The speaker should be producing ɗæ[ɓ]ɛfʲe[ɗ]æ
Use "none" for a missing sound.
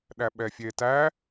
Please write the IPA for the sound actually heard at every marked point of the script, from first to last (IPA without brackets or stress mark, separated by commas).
ɓ, t